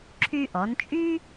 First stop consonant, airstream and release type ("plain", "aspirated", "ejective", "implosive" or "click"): click